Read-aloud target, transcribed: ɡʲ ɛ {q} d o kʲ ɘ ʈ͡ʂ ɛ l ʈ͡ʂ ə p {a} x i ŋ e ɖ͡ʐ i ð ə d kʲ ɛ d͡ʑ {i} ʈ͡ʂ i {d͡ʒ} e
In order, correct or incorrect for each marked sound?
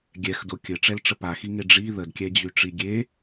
incorrect: x, correct, incorrect: y, incorrect: ɡʲ

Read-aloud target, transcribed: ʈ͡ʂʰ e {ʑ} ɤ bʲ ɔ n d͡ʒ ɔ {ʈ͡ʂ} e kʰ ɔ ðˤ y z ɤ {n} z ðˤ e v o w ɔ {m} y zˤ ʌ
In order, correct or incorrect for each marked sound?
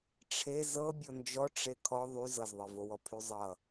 incorrect: z, correct, incorrect: none, incorrect: pʰ

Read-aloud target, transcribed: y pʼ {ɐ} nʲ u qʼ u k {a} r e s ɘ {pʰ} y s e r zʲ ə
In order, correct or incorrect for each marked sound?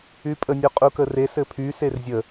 incorrect: ə, incorrect: ə, correct

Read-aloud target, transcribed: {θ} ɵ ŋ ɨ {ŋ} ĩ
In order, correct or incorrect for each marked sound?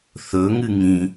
correct, correct

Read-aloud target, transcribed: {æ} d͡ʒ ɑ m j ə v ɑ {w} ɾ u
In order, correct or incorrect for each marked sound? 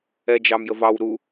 incorrect: ɛ, correct

